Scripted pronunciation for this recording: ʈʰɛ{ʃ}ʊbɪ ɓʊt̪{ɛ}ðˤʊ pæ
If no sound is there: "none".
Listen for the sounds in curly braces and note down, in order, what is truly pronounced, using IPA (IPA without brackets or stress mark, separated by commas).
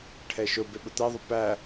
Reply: ʃ, ɛ